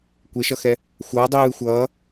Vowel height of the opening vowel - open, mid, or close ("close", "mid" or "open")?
mid